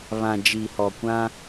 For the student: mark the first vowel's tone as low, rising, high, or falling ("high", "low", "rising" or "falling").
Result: low